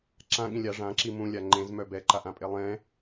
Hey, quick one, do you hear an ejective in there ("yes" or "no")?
yes